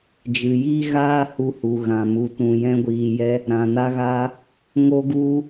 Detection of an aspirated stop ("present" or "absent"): absent